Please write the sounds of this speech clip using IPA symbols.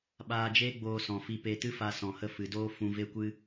ɓaː˧d͡ʒeː˦ ɡ͡boː˧sɔ̃˨fi˧pe˧ tɨ˦fa˧sɔ̃˨hə˧ fɨ˨doː˦ fũ˧ve˦kʷɨ˦

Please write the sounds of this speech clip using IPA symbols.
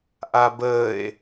ʔabəːe̯

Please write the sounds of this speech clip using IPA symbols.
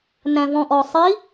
næ̃vɔ̃ʔɔsˤi

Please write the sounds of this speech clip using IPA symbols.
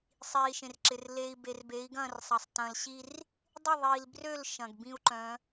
sˤiː˨ʃẽ˨rǁɪ˨r leː˨i̯ be˨rbe˨˦i̯ɡɐ̃ː˦˨rsˤɐ˨sˤ tɐ̃ː˨lɕi˦r | dˤɪ˦˨ðˤiː˨lbrø˦˨l ʃɐ̃˨ɡbĩ˦u̯ǃœ̃˨˦

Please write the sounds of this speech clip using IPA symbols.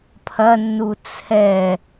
pʰɐnːu t͡sʰɛ

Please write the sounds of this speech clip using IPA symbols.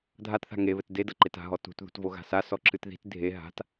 dʱatθa̤ ŋeβɘt dedɐ ǃeta̤ɦɔ tṳt ðṳtvoɣa̤sa sɔǁɨtði̤t dʱe ɦa̤t

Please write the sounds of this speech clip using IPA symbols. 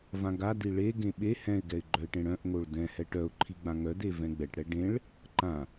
vãɡadi ɭe ɡẽɓe hɛ̃ɪ̯ɡɛɪ̯ɡ͡ǃœɪ̯ʈẽ ɽœ̃ʔŋoɭ dɛ̃hɛ ʈœʊ̯ǃʰiɡ͡bã ŋœde vɛ̃ɡ͡bɛʈɽɛ ɖẽɭ | ǃã

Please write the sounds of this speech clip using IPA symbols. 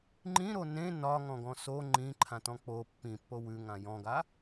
ŋ͡ǃĩɾo nẽ nɒŋɔ̃ɡɔ̃ so ŋ͡ǃĩǃʰãtɔ̃ k͡po pːĩpːo wʉŋã jɔ̃ɡa

